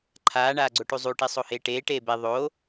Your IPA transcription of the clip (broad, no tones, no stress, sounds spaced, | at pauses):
ǃʰ aː ɳ aː ɡ͡ǀ o ʈ u zˤ u ʈ i sˤ o h eː ʈ eː ʈ eː b e ðˤ o